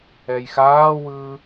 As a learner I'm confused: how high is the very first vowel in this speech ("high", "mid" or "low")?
mid